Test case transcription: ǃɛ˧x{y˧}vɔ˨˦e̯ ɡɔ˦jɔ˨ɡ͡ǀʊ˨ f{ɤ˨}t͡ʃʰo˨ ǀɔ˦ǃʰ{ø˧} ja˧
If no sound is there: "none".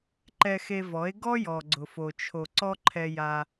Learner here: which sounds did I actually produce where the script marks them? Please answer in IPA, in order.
e˧, o˨, ɛ˧

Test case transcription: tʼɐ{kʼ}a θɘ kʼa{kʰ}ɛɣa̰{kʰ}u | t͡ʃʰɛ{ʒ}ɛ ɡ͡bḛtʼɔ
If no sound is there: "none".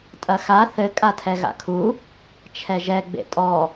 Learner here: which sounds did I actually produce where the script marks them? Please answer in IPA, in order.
x, tʰ, kʰ, ʒ

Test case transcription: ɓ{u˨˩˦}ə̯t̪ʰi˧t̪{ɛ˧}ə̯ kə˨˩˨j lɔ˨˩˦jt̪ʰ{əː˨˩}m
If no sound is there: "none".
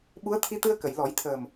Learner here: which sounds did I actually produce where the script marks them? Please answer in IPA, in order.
u˧˥, ɨ˧, əː˨˩

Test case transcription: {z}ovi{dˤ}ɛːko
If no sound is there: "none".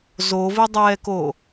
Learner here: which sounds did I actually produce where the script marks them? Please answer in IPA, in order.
z, dˤ

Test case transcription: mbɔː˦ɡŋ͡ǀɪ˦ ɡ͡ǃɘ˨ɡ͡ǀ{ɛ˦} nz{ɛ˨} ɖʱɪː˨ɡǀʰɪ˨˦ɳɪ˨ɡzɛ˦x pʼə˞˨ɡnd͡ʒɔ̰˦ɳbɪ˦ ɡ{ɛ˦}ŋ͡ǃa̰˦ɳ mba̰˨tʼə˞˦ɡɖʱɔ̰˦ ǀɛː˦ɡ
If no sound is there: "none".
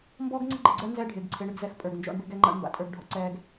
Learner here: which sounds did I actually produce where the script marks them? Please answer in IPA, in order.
ɜ˦, ɛ˦, ɛ˦

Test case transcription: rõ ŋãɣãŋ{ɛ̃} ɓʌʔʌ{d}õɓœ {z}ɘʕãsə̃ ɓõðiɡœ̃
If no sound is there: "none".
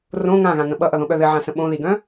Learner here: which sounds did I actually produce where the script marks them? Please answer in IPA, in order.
ə̃, ð, ð

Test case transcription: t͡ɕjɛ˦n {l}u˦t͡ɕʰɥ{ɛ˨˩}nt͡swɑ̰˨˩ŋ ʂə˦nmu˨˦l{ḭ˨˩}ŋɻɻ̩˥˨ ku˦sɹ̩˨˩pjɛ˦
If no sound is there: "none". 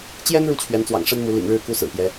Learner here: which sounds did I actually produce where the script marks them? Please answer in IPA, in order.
ɻ, ɛ˨˦, ḭ˨˩

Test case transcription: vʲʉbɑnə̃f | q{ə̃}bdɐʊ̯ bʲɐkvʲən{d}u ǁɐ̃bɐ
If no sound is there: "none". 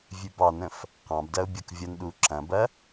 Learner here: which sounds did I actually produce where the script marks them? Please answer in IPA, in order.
ɑ̃, ɗ

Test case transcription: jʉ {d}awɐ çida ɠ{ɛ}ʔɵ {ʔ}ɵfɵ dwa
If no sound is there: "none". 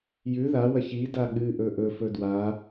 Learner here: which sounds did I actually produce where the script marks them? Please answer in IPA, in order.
ð, ɨ, ʔ

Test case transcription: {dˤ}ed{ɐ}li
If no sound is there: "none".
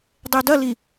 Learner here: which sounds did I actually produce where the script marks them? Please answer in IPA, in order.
dˤ, ɐ

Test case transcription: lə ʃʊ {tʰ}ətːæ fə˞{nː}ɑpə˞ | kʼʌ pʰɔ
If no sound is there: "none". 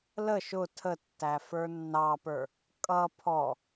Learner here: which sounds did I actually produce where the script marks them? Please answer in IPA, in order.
tʰ, nː

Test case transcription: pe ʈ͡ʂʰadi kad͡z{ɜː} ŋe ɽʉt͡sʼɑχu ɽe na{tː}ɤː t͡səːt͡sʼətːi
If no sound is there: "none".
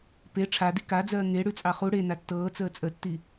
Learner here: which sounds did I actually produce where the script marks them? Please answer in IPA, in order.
ɜː, tː

